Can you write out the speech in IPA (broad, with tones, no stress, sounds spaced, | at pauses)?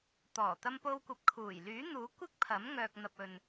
t̪ ɔː˨˩ t̪ ɐ˧ m p o˧ w kʷ ɐ˨˥ p̚ kʰ uː˨˩ j l yː˨˥ n̪ uː˨˥ kʷ ɪ˥ k̚ pʰ ɐ˨˥ m ŋ œː˨ k̚ n̪ ɐ˨ p̚ ɵ˨ n